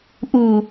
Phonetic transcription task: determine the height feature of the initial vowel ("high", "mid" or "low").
high